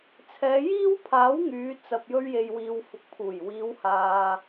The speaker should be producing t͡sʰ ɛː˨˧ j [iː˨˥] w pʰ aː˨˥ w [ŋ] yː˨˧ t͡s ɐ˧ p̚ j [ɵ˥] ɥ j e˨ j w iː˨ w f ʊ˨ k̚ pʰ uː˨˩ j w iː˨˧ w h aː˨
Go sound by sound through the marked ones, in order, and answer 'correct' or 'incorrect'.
incorrect, correct, incorrect

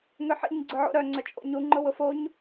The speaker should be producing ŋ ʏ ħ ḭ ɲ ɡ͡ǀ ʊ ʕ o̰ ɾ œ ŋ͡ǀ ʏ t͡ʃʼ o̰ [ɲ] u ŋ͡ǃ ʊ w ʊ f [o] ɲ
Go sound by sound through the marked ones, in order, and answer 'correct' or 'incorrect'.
correct, correct

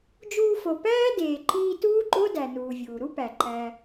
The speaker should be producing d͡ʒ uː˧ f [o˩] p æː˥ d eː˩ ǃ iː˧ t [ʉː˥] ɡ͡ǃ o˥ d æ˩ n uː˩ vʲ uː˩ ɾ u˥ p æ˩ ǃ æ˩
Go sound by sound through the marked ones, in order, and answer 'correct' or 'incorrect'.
correct, incorrect

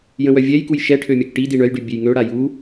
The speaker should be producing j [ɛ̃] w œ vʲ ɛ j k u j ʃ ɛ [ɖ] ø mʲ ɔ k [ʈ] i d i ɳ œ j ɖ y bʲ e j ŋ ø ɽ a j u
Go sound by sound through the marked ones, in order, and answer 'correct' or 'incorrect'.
incorrect, incorrect, correct

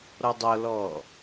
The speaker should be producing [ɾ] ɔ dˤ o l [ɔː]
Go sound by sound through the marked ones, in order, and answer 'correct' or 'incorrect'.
correct, correct

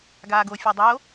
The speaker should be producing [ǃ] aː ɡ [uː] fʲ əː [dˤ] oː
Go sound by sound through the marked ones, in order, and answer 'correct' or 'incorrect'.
incorrect, incorrect, correct

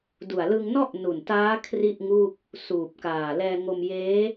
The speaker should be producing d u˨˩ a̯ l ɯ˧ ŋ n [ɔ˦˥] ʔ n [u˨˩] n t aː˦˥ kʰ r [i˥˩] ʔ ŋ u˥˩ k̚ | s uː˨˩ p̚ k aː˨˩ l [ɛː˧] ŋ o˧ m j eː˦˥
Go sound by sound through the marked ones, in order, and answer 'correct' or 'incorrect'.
incorrect, correct, correct, correct

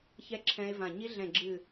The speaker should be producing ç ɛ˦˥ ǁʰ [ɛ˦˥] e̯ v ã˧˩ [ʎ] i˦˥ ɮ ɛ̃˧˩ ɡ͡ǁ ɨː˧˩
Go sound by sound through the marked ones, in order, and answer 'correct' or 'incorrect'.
incorrect, incorrect

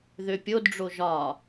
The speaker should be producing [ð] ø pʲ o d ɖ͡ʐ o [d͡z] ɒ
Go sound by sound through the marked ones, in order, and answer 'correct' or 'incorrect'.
correct, incorrect

